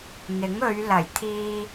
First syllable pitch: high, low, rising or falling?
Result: rising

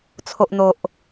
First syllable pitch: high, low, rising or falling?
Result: low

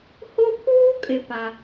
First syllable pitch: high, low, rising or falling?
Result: high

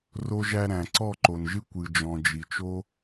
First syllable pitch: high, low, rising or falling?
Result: high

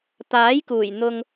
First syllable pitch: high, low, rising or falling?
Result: rising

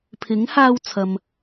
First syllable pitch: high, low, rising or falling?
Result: rising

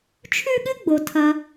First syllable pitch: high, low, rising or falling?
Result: high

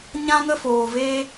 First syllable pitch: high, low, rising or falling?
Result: high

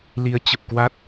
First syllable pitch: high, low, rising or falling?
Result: rising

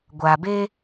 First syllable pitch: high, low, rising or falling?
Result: low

